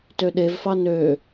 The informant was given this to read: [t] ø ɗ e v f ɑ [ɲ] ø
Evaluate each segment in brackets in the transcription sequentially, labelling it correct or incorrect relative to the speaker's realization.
correct, incorrect

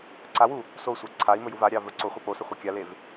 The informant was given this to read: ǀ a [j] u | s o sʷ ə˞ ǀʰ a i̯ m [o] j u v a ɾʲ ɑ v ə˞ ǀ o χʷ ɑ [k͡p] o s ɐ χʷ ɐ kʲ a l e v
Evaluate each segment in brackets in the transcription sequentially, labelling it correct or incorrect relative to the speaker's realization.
incorrect, incorrect, correct

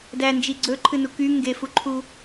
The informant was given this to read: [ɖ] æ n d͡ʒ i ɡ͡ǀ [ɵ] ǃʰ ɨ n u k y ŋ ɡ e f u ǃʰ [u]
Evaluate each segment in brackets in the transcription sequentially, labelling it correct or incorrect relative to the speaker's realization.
incorrect, correct, correct

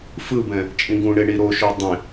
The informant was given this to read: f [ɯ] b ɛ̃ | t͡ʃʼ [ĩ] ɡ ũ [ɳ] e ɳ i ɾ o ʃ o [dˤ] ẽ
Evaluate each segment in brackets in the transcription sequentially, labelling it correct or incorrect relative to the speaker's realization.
correct, correct, correct, correct

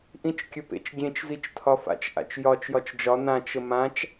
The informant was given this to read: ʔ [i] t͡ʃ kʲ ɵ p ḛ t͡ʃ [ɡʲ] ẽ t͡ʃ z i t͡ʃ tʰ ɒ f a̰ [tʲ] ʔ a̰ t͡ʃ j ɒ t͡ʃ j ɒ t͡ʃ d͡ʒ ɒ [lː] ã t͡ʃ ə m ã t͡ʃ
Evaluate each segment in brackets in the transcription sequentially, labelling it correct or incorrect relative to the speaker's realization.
incorrect, correct, incorrect, incorrect

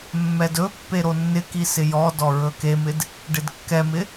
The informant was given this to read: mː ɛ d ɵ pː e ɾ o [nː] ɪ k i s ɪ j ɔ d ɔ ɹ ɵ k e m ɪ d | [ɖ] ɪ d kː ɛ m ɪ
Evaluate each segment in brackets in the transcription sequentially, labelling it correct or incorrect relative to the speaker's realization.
correct, correct

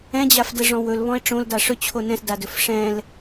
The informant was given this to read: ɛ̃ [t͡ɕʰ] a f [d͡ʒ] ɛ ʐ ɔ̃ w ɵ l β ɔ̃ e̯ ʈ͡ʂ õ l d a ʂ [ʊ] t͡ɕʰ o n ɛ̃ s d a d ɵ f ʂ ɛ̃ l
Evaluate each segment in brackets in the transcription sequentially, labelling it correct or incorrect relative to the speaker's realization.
incorrect, incorrect, incorrect

